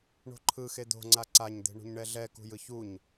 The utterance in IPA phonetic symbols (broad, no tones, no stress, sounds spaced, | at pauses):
ɳ o̤ ǃʰ ɯ x e d̪ o̤ ŋ͡ǀ a ǀ a ɲ d̪ e̤ ɳ ṳ ɲ ɳ ɛ ɮ ɛ k ṳ j ɯ ç u ɲ